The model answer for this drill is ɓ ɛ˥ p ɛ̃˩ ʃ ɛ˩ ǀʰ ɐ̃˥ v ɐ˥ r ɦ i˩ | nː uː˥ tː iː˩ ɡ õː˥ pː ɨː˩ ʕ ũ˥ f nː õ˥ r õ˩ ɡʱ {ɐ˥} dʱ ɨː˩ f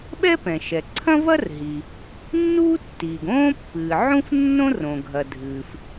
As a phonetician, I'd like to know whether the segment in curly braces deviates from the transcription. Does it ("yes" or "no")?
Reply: yes